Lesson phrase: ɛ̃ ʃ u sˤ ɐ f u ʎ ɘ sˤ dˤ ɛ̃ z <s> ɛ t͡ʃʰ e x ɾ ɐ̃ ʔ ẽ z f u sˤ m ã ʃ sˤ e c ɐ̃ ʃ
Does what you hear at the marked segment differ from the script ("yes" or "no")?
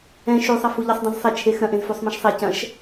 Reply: yes